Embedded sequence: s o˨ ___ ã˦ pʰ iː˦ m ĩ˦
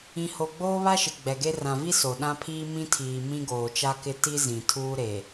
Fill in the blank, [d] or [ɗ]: ɗ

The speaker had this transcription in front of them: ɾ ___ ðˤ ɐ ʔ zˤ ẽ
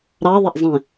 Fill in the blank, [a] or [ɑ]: ɑ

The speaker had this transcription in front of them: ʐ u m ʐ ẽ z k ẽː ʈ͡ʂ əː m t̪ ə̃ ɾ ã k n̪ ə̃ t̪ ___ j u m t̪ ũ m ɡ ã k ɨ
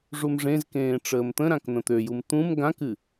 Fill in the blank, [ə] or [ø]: ø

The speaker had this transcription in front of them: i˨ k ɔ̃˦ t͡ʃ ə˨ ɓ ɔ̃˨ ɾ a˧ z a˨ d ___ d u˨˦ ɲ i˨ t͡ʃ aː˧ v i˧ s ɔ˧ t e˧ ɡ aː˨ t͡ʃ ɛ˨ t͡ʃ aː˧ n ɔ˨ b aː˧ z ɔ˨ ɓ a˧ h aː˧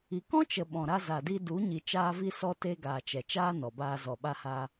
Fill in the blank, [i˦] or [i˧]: i˧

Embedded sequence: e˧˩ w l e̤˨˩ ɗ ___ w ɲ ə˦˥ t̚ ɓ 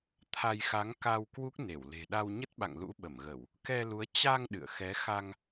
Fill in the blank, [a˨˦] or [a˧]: a˧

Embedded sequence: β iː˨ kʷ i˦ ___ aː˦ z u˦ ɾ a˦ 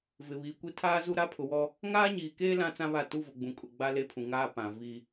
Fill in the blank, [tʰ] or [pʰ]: tʰ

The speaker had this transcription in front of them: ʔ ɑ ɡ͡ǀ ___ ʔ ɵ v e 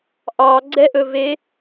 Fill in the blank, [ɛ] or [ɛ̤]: ɛ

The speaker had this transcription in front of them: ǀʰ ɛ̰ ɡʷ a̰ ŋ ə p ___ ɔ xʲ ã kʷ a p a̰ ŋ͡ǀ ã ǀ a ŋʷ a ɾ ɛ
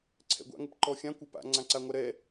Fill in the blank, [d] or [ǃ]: ǃ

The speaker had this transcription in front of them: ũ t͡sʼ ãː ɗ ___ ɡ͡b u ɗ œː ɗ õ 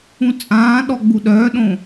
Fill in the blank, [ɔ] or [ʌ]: ɔ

